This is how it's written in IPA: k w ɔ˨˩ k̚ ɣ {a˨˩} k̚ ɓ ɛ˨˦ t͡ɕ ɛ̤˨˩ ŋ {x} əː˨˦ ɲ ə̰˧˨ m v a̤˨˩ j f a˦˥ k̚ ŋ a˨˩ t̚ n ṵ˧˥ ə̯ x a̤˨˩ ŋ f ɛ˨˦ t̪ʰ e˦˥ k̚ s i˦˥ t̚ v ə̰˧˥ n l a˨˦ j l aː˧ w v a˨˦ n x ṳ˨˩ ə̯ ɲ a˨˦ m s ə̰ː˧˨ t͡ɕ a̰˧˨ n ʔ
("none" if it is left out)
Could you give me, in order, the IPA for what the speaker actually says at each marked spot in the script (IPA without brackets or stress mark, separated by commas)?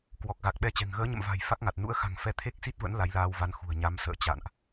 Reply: a˨˩, ɣ